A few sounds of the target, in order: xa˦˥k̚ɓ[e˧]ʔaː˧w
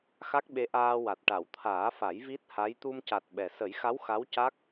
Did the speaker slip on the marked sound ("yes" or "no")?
yes